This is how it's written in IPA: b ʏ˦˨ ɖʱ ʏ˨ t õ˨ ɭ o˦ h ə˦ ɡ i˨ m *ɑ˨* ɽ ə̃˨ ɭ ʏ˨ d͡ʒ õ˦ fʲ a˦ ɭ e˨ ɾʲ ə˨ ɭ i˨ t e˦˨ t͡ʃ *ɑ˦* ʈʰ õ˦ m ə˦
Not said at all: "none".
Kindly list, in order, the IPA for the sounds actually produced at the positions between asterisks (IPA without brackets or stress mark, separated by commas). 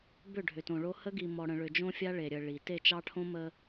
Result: ɔ˨, ɑ˦